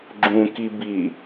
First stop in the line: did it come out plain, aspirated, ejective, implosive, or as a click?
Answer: click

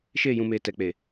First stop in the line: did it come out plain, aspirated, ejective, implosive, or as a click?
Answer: plain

